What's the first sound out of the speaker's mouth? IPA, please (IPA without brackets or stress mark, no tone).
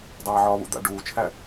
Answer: dˤ